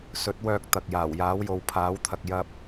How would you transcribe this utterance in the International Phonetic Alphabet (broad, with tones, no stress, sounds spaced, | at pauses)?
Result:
s ɵ˨˥ t̚ w œː˧ k̚ t̪ ɐ˨ k̚ j aː˨˩ w j aː˨˥ w j o˨ w pʰ aː˨˥ w t̪ʰ ɐ˨ k̚ j ɐ˥ p̚